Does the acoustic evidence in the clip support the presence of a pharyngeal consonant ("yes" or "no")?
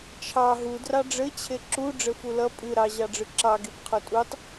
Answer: no